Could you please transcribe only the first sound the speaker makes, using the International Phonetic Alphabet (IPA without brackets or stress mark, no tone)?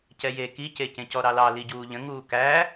c